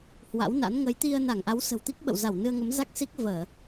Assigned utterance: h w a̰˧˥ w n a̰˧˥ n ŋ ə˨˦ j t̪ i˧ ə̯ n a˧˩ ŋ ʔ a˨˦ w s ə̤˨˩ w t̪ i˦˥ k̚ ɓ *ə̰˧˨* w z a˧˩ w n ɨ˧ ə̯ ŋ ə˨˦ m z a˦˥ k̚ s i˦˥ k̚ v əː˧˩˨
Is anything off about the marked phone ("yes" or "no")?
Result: no